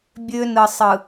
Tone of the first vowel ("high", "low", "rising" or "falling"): high